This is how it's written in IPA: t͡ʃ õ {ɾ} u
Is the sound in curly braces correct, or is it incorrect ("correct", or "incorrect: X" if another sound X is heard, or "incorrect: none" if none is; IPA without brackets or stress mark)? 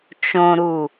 correct